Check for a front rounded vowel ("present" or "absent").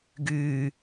present